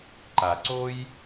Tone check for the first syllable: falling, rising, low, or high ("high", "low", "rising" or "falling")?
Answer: low